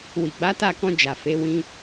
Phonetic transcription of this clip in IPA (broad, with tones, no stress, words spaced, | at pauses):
wi˨ɡ͡ba˨˦ ta˦˨kɔ̃˧ d͡ʒa˨fe˨˦wĩ˧